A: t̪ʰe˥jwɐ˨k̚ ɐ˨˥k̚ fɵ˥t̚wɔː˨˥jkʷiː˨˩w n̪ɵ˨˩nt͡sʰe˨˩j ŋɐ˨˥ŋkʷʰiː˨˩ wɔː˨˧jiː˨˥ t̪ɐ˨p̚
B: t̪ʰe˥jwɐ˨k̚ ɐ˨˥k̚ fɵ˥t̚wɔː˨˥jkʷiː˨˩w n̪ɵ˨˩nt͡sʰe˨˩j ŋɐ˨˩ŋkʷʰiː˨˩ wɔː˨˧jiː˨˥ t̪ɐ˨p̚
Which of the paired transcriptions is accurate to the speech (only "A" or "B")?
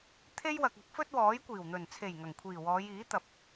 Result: B